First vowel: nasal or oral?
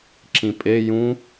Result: nasal